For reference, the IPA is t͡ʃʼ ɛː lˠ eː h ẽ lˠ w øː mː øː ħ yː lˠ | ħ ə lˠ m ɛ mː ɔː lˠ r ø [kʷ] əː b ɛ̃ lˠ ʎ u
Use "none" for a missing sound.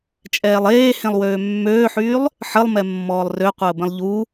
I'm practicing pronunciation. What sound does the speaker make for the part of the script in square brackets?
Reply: qʷ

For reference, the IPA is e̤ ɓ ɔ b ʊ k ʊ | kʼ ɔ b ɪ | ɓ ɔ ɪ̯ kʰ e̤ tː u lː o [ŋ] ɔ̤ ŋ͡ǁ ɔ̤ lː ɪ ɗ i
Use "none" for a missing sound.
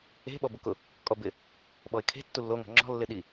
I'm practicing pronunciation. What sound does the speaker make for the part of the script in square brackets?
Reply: ŋ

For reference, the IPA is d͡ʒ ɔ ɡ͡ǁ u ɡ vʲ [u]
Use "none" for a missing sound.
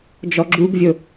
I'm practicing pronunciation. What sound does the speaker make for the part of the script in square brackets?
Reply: o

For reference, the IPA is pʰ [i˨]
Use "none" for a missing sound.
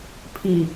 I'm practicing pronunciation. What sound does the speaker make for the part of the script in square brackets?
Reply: i˨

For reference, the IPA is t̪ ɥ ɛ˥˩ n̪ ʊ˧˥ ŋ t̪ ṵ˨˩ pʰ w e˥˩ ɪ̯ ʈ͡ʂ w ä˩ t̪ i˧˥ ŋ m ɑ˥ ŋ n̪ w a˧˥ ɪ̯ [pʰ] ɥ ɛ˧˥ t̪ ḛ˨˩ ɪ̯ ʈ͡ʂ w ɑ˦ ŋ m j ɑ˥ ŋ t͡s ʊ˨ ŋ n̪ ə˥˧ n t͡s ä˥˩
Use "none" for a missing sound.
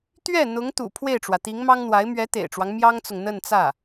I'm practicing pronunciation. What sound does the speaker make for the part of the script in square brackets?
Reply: m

